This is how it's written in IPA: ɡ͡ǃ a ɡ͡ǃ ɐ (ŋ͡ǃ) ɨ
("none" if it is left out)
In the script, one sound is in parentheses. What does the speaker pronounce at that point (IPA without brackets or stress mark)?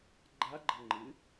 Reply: ŋ͡ǃ